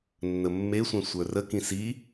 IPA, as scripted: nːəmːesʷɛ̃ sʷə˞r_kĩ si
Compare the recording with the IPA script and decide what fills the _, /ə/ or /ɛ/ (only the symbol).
ə